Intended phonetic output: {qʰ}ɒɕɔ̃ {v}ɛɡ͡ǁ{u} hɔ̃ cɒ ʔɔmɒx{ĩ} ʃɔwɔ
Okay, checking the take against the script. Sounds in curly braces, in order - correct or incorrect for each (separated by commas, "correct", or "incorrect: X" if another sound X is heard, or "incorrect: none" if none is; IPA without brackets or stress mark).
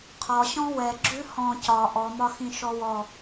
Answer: correct, incorrect: w, incorrect: ʉ, correct